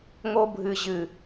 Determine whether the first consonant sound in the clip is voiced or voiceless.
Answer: voiced